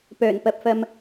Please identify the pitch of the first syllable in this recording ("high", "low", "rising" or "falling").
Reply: low